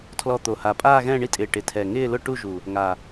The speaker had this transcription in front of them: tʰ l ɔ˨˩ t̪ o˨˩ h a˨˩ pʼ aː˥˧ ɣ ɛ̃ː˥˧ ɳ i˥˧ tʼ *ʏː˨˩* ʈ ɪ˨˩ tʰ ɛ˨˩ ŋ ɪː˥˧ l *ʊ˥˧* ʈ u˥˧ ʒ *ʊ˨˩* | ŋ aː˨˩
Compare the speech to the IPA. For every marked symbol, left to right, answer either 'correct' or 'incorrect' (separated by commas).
incorrect, correct, incorrect